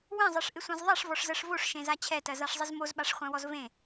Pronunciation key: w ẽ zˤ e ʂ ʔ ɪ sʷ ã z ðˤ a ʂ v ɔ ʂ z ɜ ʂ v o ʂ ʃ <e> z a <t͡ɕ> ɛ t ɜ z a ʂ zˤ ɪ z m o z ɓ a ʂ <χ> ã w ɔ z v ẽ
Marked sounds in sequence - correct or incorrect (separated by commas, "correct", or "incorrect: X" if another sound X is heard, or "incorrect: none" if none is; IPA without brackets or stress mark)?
incorrect: ẽ, incorrect: t͡ɕʰ, incorrect: χʷ